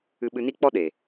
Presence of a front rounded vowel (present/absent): absent